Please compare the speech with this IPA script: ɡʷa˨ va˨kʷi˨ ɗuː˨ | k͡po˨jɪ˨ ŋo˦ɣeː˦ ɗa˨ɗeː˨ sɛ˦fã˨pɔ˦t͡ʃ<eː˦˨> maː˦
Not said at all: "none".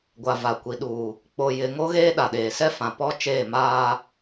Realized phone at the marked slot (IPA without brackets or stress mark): eː˦˨